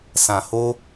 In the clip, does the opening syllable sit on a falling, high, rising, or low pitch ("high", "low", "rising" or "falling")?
low